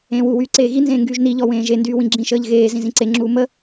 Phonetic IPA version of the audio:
ẽː w u w yː ǀ eː ɣ i n z ẽː ŋ ɡ yː ʒ n i ʎ ɔ w ẽː ʒ e n d yː w ĩ ɡ͡ǁ ĩ ʃ əː ʎ ɣ eː z ĩ z ĩ ǀ e ŋ͡ǁ uː m ə

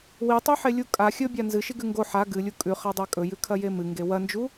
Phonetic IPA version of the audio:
w i tˤ ʉ ħ e lʲ u kʼ a xʲ ɵ bʲ a n z ɨ ʃ i ɡ ʉ ŋ ɡ o ħ a ɡ ɨ lʲ u kʼ ʉ χ a dˤ a kʼ ɵ j ʉ kʰ ɐ j e m ɨ ŋ ɡ e w ɐ n d͡ʒ u

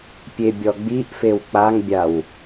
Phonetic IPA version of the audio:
pʲ e bʲ ɔ ɡ͡b i ʔ f e w k͡p a ŋ bʲ a w

